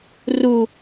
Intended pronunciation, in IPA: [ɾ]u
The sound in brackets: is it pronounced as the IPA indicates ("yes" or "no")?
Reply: no